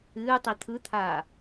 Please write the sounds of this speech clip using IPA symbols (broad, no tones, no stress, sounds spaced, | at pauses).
ɨː tˤ i t̪ʰ ɯ t̪ʰ aː